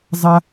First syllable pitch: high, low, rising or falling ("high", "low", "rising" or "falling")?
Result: high